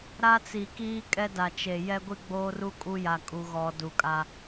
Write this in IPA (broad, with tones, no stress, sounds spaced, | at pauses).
ɾ a˦ t͡s i˨ k iː˦ kʼ ɛ˦ d a˨ t͡ʃ e˨ j ɛ˦ ɡʷ i˦ ɡ͡b oː˦ r u˦ kʼ u˦ j a˨ kʼ u˦ ɣ ɔ˦ d u˨ kʼ a˦